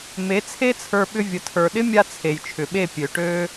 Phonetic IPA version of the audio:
m e˨˦ t͡sʰ e˦ t͡sʰ ə˞˧ ɓ ʏ˧ vʲ ə˨ tʰ ə˞˨ ɗ ɪ˦ mʲ a˦ t͡sʰ e˨ j t͡ʃʰ ʏ˨ ɓ e˦˨ pʲ ø˨ ʈ ø˦

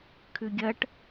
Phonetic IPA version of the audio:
kʰ ʉ ɡʲ ɐ ʈ

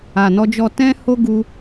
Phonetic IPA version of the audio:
a˨ n ɔ˧ d͡ʒ ɔ˧ t ɛ̃˦ h o˦ ɡ u˧

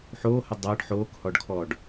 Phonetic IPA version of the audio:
ħ oː h ə dˤ ʌː ɖ ħ oː k h ɔ ɖ kʰ ɔː ɖ

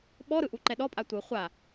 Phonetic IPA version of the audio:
ɓ ɔ ɾ ɯ ʔ u ǃ ɛ ɗ ɔ pʼ a tʷ ɯ χʷ a

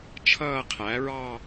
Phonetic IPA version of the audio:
t͡ʃʰ ʌː˥˧ qʰ æ˩˥ ɹ ɑ˥˧

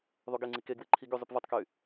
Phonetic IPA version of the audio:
ðˤ u ɡ e ŋ͡ǀ i k e ɡ w e ǃʰ i ɡ y zˤ y p v o tˤ k y

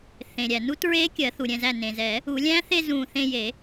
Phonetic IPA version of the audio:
θ ẽ˩ ɾʲ æ˩ n u˦˥ t ɹ e˦˥ kʲ ɜ˨˩˦ θ u˩ ɾʲ ɛ̃˧˩ z æ˧˩ n ẽ˩ z ɛ˨˩˦ | u˨˩˦ lʲ æ̃˦˥ θ e˥˧ z ũ˧˩ θ ẽ˥˧ j e˨˩˦

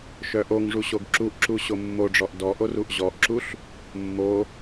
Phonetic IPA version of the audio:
ʃ œ ʔ o ŋ ʐ u ɕ o ɡ ǁ u ʔ ǁ u ɕ o mː o ɖ͡ʐ ɔ ʔ d ɔ ʔ o r u ʔ ʑ ɔ ʔ ǁ u ɬ | mː o

